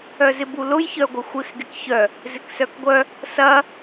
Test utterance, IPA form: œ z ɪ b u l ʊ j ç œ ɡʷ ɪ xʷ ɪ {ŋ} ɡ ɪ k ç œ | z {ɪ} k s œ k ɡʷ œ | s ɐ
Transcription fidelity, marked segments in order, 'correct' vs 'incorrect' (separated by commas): incorrect, correct